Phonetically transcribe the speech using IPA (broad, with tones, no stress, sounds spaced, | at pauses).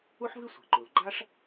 u˥ ħ v i˥ sʷ ɛ̤˩ ǃ u˩ l ɡ͡ǃ a˥ ʂ